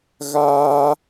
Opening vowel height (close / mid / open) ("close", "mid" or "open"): open